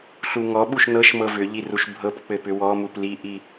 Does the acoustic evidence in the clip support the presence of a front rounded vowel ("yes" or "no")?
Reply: yes